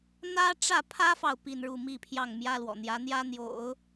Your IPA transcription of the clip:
n̪ ä˥ ʈ͡ʂ ä˥˩ pʰ ä˥ f ɑ˨ ʊ̯ p i˥˧ n ɻ u˥˧ m i˥˧ pʰ j ɑ˥˩ ŋ m j ä˥ l w ɔ̰˨˩ n̪ j ä˧˥ n̪ j ä˥ n̪ j o̰˨˩˦ ʊ̯

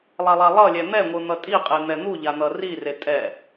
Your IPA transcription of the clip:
lˠ a lˠ a lˠ ʌ lʲ ɛ n̪ ɛ ŋʷ ɯ n̪ ʌ tʼ i qʼ e n̪ ɛ n̪ u ʎ a n̪ ʌ r i r e tʼ ɛ

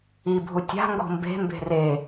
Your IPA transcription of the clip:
i bʱ u tʲ a̤ ŋ ɡ o̤ m b e̤ m b e̤ r e

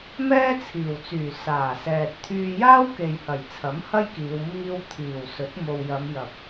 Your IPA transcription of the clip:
m ɛː˥ t͡sʰ iː˨˩ w t͡s yː˨˩ s aː˨˩ s ɛː˨ t̚ t̪ʰ yː˧ j aː˥ w k e˨ j h ɐ˨˩ j t͡sʰ ɐ˨˥ m h ɐ˥ j k iː˨˧ w m iː˧ w t̪ʰ iː˨˩ w s ɵ˨˥ t̚ m o˨ w j ɐ˨˧ m j ɐ˨ p̚

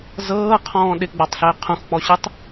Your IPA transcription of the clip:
z ɤː qʰ ɔ̃ː ɗ ɪ ɡ͡b ɔ tˤ ɬ ɪː qʰ ũ x k͡p ɔ ɕ ɨ tˤ

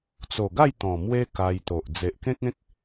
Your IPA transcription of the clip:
t͡s o˨˩ ɡ a˥˧ j t̪ ɔ̃˨˩ m w e˦ k a˧ j t̪ o˨ ʔ d͡z e˨ ʔ k ẽ˦ k̚ ẽ˦ k̚

